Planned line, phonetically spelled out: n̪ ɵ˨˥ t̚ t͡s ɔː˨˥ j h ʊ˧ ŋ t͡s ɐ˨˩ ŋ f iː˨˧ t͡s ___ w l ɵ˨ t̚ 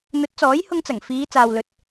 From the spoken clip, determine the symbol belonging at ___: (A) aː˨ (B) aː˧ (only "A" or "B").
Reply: A